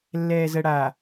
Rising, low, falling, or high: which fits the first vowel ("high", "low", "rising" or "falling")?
low